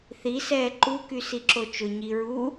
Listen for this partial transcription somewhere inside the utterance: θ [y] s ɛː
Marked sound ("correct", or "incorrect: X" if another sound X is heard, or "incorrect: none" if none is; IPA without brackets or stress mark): incorrect: i